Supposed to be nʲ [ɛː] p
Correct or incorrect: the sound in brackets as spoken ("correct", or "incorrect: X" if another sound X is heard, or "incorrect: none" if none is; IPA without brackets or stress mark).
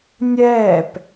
correct